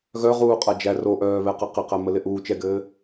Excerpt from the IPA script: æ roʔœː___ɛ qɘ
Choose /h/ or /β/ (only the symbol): β